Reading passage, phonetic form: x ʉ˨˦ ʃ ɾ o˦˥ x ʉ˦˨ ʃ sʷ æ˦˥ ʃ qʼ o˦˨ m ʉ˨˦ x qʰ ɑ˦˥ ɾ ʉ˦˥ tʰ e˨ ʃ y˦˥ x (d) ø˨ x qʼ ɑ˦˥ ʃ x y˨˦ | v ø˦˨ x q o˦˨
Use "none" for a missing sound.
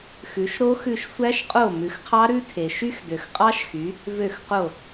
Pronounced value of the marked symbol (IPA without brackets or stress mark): d